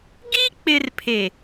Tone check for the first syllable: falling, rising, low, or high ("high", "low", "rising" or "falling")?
high